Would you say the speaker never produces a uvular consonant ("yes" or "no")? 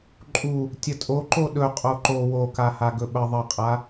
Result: no